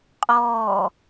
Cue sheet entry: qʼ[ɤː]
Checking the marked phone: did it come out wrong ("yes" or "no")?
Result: yes